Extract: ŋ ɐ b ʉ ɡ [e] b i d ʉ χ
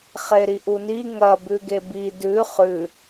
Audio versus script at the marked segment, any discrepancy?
no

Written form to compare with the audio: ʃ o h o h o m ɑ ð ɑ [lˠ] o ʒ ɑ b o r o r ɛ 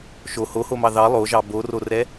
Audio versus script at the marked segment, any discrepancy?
no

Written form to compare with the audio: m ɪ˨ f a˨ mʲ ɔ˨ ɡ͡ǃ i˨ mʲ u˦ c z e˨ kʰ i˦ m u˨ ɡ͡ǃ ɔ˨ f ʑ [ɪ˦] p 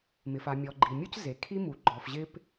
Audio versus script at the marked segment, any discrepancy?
no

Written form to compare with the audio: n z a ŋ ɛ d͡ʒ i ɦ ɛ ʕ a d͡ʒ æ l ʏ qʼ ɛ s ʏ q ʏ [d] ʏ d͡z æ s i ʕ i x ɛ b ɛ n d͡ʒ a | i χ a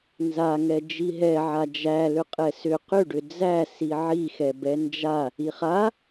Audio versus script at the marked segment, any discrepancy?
yes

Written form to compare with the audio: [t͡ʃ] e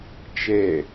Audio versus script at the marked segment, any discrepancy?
no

